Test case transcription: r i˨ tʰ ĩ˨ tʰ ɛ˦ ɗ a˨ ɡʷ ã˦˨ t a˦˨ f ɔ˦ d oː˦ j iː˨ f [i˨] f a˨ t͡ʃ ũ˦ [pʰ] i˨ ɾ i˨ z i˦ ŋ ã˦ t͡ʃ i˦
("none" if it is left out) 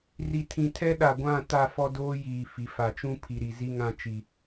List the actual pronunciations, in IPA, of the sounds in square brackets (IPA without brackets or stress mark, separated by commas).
i˨, pʰ